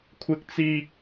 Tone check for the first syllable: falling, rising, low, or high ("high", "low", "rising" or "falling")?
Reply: high